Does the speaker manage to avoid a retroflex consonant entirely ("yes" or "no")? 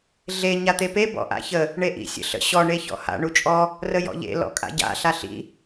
no